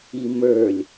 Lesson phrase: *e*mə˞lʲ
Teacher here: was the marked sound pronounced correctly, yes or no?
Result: no